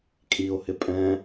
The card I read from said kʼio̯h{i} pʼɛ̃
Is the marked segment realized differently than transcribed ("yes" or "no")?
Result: yes